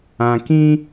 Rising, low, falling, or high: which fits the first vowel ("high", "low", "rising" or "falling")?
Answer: low